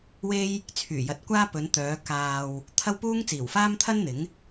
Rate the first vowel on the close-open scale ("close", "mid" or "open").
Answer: mid